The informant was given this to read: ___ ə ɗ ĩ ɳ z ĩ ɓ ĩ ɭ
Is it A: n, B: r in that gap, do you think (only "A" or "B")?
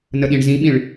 A